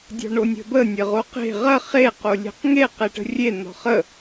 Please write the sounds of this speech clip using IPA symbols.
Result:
dʲɔ̤ɳonʲə̤bə nʲəʁoqe̤ ʁɐ χe qolʲe̤qŋe qeʈə̤rʲe n̪ɔ̤χə

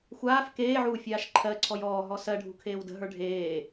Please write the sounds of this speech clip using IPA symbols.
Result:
xʷaːf keːʕuː fʲaːʃǃʰɜǀʰɔj ɔːɦɔ sɜɖʱṳ kʰeːwdə̤ɦə˞ ɖʱeː

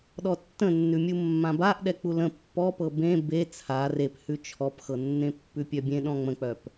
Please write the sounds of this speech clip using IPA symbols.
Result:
ɗɔtːə̃nːʉmʲu mːãbaʔ ɗɛk͡pulə̃ pːɔpɤ bẽ be t͡sʰa rephʉ t͡ʃʰɔpxɤnːẽ pːʉpʲœbʲẽ ɗɔ̃ŋ͡mə̃k͡pœp

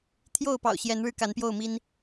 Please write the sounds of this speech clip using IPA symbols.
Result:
t̪ʰjo˥˨ʊ̯pɑ̰˨˩ʊ̯ ɕjɛ˨˦nɻɻ̩˧ ka˨˦npjo˥˨ʊ̯mi˦n

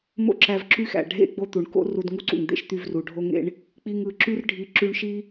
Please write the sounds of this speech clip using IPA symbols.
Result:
mo̰˦ǁæ˧v ǁy˦xæ̰˨ ɖʱḛ˦ ɡ͡bo˦t̪u˨ɳ ko̰˦ ru˧dŋu˦ǀṵ˨ŋd̪ḛ˦ʃ t̪y˧vru˨ɖʱo˦ŋḛ˦ɳ | k͡pi˧ŋɯ˨ ǁy˦rɖʱi˧ ǁy˧ɳʃi˦

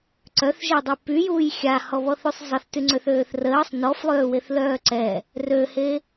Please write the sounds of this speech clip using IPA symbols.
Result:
ǀœθʒedˤe pyjuːj xʲahɔβɔθysˤ zˤəθtyŋ͡ǀøθøːθ rəːsˤ nɔflˠøːweθlœː ǀɛ | røhe

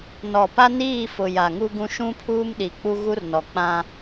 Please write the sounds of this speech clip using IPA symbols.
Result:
nɔ˨ pa˦niː˦˨fʊ˨ ja˨ŋu˦ɡũ˦ ʃũ˦pʰuː˦mɗi˨k͡pu˦ ɣu˦rnɔ˨k͡pã˦

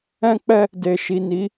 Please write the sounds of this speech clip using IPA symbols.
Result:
ɛ̃˦k͡pɛ˦ | de˨ʃi˨ni˨˦

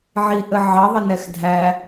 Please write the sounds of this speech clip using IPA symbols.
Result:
ʕiʔə ʕɑðˤə nɛxdʱæ

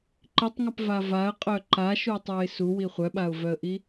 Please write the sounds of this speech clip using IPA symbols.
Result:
ǃitˤŋɐpva vaə̯qʼœ ǃaʃutˤuɪ̯ suwi χʷœɓaʊ̯vœə̯ʔi

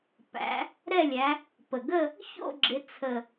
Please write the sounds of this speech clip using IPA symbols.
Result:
pæ̰˨˦ | ɾɛ˥˧lʲæ˨˦ | pə˨˩ɡə˥˧ | ço̰˥˧ɡ͡ǁɪ˨˦ t͡sʰə˨˩

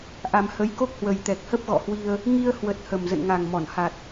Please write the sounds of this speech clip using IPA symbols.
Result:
ʔa˧m hə˨˦jko˦˥k̚hwə˨˩j t̪ɛ˨˩k̚hə˦˥p̚ɣɔ̰˧˨hwi˧ə̯ | ŋi˧ə̯hwə˨˩t̚ hə˨˩mzə̰˧˨nŋa˨˩ŋmɔ˧˩n ha˨˩t̚

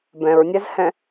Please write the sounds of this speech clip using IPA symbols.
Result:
bɛ̃ɹnʲɛzhɛ̃

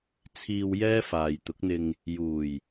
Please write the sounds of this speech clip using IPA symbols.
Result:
t͡sʰiː˧w jɛː˥faː˨jt̪ʊ˨˥k̚n̪ɪ˧ŋ | juː˨˩j

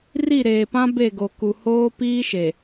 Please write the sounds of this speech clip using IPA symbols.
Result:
ri˦˨ɾeː˨pã˦ be˦˨ɡo˨ku˨ hoː˦piː˦ʃe˨

